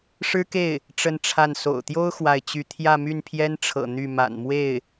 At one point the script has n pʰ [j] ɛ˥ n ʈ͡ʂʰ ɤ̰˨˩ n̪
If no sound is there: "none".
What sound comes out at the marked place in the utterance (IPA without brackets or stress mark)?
j